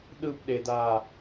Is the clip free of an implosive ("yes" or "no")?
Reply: no